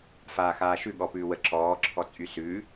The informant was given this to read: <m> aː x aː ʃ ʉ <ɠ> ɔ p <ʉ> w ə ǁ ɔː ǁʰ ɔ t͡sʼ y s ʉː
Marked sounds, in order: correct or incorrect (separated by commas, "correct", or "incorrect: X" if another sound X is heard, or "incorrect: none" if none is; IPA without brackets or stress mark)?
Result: incorrect: f, correct, incorrect: ʉː